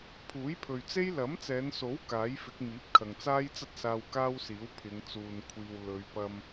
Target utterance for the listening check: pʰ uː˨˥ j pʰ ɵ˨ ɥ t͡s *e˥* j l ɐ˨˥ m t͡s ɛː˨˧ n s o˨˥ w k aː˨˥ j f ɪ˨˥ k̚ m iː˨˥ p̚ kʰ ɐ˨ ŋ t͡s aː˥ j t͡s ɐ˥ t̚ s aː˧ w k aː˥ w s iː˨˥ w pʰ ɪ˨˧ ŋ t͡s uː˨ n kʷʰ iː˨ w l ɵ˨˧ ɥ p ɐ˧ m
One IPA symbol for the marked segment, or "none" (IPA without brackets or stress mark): e˥